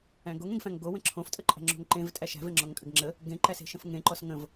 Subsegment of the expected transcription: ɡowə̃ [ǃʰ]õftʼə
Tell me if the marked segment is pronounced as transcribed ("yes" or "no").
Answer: no